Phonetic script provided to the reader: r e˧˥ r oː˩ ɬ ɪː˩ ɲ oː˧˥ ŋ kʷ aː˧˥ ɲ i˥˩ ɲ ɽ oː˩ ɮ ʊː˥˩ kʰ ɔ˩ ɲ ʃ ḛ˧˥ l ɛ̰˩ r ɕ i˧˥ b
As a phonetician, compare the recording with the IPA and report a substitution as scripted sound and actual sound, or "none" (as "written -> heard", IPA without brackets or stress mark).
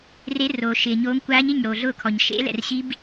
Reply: ɬ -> ʃ